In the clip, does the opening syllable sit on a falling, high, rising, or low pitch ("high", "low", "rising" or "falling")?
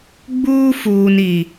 high